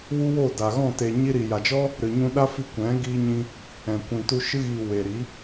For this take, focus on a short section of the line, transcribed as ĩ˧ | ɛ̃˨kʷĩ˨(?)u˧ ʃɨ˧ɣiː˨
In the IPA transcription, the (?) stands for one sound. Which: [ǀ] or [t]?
t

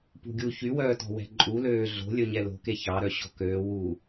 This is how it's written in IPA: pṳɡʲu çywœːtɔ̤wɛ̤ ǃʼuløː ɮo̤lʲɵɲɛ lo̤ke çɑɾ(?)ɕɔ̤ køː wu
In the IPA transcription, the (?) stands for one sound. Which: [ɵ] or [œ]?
œ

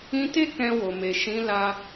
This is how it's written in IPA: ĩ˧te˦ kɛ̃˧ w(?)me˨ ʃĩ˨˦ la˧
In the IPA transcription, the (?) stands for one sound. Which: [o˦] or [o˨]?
o˨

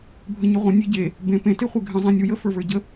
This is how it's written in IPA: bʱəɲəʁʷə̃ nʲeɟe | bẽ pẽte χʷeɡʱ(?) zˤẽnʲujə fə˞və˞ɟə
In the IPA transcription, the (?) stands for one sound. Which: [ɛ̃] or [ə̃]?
ə̃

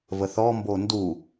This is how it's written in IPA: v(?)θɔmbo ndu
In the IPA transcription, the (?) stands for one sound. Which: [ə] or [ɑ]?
ə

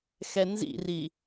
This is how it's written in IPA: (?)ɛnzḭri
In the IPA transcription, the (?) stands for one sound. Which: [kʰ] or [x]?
x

